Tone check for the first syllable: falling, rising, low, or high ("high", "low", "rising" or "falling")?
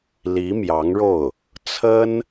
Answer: rising